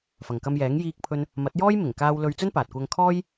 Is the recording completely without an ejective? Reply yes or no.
yes